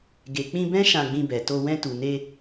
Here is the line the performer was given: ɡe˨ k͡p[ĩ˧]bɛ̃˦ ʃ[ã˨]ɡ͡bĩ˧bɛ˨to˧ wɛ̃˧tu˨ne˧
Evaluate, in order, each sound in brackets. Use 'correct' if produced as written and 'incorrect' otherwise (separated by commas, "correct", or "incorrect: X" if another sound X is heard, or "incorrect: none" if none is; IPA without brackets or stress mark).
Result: correct, incorrect: ã˧